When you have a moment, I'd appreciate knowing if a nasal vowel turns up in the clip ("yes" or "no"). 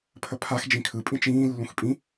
yes